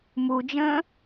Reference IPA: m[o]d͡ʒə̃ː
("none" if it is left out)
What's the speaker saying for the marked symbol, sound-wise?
u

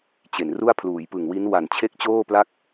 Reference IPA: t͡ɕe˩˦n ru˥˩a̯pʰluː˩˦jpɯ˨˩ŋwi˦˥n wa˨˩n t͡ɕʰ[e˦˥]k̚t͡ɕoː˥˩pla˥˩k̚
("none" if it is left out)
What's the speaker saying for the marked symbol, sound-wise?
e˥˩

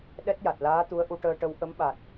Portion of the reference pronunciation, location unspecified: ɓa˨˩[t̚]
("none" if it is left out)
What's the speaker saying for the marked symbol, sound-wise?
t̚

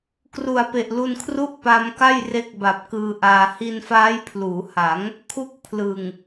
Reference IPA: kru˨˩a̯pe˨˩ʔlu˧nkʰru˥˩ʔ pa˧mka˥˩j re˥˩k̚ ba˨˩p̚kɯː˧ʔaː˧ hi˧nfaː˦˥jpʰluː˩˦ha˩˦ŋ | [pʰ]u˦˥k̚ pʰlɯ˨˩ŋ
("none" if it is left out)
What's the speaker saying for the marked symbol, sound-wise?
kʰ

